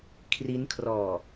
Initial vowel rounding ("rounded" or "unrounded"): unrounded